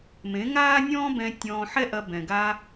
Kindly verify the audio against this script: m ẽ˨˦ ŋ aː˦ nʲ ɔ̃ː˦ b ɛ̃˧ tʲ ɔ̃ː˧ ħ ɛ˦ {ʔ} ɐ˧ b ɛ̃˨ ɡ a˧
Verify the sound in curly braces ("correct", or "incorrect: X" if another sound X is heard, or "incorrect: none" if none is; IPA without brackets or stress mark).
correct